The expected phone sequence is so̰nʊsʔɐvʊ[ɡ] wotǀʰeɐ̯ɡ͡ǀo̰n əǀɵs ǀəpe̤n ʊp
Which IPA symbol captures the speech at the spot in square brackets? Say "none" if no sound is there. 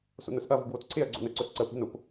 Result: ɡ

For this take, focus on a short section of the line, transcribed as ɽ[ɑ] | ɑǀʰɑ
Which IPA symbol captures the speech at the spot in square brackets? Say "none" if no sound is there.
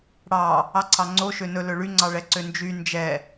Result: ɑ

